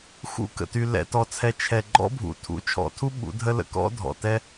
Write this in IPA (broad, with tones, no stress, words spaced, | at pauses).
xṵ˧kə̰˨ty˨ lɛ̰˨ tɔ˧t͡sʰɛ˧ t͡ʃʰɛ˨ɡ͡ǃɔ̰˦bʱṵ˨ tʰṵ˨˦ t͡ʃʰɔ̰˨tʰu˦ ɓṵ˨˦dʱə˦lə̰˧ kɔ̰˦dʱɔ̰˨tɛ˦